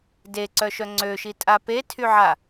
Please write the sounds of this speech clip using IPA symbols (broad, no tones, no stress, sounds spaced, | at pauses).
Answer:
d e ǀ œ ʃ œ ŋ͡ǀ ø ʃ i tʼ a p e tʰ y ʕ a